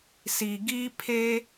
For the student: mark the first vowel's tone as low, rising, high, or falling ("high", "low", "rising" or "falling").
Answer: low